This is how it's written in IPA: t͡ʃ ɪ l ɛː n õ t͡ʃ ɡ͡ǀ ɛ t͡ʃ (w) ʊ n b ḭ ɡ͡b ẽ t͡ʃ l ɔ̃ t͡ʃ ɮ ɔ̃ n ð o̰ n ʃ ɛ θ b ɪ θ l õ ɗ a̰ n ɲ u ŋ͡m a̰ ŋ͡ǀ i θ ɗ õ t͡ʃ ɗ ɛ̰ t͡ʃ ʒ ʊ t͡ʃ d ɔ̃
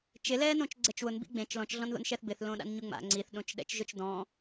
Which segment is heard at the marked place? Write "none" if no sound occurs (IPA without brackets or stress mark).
w